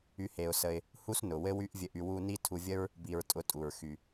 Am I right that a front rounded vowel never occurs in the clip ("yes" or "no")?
no